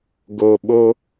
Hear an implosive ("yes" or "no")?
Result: yes